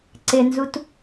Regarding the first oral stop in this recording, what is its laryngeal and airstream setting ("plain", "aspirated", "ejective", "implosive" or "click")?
click